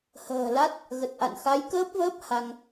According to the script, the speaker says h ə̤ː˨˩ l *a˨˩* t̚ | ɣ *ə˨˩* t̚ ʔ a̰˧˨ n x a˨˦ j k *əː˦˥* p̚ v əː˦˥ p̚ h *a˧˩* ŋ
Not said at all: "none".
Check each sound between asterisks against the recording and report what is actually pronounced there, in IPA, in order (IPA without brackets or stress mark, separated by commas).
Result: a˦˥, ə˨˩, əː˦˥, a˧